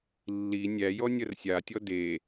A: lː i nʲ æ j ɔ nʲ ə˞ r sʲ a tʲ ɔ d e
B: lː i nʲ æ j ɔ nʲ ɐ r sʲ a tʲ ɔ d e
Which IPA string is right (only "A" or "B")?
B